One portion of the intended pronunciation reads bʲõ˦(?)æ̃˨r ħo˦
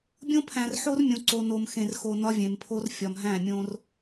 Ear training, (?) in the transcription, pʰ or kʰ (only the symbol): pʰ